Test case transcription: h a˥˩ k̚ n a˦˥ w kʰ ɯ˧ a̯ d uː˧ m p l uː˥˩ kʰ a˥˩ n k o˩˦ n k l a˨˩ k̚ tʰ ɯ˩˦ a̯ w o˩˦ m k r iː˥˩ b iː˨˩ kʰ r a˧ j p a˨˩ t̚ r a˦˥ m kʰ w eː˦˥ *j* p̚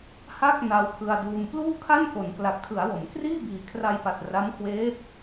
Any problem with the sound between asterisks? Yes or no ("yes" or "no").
yes